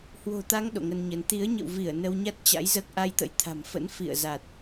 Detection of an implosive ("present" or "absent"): present